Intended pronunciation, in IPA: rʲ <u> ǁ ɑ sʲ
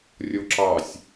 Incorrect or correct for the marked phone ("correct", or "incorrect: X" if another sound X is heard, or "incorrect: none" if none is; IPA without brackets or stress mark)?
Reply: incorrect: o